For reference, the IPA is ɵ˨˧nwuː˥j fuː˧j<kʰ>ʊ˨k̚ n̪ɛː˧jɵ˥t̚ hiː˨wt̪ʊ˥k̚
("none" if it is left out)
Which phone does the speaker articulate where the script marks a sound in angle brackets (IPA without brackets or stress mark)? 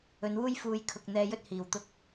kʰ